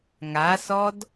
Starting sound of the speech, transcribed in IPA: ŋ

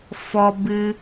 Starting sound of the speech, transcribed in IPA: f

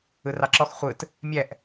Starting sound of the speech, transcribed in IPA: ɯ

